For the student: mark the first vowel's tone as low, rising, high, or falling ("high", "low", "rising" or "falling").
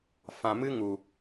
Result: low